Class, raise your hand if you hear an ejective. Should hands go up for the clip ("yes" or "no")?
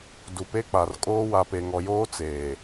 yes